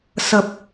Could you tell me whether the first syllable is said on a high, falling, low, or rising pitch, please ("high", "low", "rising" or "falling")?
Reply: low